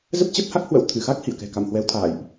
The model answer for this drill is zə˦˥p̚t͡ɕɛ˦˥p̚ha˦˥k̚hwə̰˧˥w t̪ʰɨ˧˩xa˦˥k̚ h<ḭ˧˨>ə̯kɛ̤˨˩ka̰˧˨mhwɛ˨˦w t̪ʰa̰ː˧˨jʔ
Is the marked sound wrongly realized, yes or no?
no